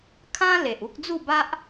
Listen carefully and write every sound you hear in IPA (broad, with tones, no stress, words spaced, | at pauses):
kʰã˦ le˨ʔu˦k̚ d͡zu˥˧ba˦ʔ